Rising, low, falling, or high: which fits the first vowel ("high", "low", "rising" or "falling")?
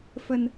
low